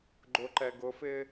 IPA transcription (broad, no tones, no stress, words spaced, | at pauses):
ɡ͡ǃʊǃɛ ɡʊfɪː